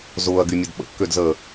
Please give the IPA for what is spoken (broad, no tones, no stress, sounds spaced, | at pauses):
z ʊː ɐ̯ ɡ y mʲ ə d ɓ ə̰ kː ø d z əː